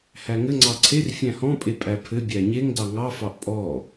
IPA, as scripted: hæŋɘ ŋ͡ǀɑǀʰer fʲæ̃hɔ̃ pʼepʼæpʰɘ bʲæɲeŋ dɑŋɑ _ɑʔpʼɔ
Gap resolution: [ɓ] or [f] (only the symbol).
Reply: f